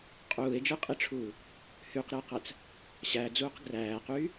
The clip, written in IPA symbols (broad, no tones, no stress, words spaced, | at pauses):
qʼuːe̯d͡ʒɯqʼiʈ͡ʂʰuː | hyqɾɯe̯qæt͡s | ɕæd͡zuːq ɡræːqyː